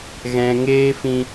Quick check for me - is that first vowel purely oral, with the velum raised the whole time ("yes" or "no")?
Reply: no